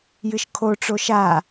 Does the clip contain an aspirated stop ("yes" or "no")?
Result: yes